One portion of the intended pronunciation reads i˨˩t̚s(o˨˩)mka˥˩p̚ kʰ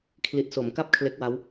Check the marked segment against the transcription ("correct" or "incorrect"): incorrect